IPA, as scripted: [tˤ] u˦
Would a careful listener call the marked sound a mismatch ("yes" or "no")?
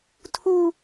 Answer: yes